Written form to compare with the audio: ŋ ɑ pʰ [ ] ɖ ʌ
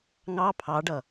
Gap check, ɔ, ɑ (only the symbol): ɑ